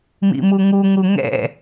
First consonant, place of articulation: labial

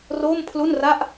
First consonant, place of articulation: alveolar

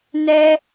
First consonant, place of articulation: alveolar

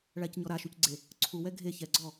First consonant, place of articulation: retroflex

